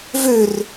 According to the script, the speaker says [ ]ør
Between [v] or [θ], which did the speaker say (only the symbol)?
v